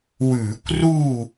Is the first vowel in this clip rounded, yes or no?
yes